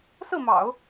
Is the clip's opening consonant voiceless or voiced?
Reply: voiceless